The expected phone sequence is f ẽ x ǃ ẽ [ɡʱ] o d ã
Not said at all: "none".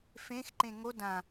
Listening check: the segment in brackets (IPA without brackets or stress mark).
ŋ